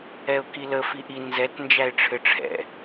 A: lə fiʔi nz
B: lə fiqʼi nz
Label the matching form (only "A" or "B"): A